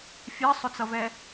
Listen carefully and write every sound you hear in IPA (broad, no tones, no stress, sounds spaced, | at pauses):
fʲ ɜ sˤ ʊ t͡s ʌ v ɛ